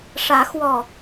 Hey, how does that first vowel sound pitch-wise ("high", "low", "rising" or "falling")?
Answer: rising